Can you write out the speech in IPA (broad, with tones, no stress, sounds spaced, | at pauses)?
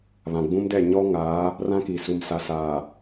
β ã˨ ɡ͡b ũ˦ m d ɛ˦˨ ɲ ɔ˦ ŋ aː˨˦ | r ã˦ k i˨ s u˨ m s a˨ s aː˨